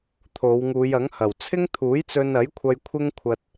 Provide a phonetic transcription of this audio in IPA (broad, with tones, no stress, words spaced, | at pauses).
t̪ʰo˨˧wŋuː˨˧jɐ˨˥ŋhɐ˨˩w t͡sʰɪ˥ŋt̪ʰuː˨˥jt͡sɵ˧n ɐ˨˥jkʷʰɐ˧j kʷʰɪ˥ŋkʷʰɐ˧t̚